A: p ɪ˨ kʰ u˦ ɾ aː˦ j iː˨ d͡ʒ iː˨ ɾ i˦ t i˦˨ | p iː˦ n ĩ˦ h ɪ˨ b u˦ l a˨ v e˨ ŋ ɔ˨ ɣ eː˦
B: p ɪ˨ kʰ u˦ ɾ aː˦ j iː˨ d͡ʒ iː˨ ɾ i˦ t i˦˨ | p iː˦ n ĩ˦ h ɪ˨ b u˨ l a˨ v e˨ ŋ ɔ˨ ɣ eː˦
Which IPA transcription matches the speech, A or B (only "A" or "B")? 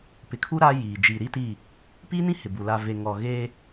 B